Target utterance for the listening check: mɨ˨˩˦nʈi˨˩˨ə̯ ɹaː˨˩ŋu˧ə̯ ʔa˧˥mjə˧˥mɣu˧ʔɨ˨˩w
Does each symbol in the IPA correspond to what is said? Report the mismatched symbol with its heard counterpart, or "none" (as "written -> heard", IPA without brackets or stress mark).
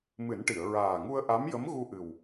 none